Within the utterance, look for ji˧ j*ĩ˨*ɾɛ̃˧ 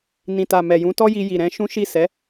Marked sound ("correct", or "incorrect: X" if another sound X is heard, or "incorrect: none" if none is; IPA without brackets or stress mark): incorrect: i˨